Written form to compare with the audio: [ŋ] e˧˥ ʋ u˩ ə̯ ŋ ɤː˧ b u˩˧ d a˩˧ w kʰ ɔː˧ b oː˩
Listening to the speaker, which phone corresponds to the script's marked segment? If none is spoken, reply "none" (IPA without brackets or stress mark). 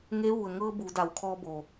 ŋ